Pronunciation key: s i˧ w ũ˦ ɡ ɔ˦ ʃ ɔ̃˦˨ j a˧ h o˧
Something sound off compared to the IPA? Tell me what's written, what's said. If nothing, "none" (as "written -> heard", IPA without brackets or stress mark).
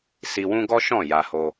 none